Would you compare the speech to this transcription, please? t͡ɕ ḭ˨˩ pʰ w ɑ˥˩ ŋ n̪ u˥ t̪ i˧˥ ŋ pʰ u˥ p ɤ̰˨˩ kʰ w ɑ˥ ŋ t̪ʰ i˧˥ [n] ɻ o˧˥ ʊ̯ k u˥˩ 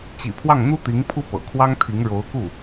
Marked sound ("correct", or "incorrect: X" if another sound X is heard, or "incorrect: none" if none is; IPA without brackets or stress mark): incorrect: ŋ